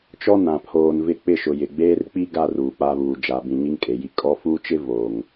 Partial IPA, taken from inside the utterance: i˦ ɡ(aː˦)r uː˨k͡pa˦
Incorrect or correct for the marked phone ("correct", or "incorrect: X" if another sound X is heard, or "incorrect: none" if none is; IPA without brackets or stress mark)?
incorrect: a˦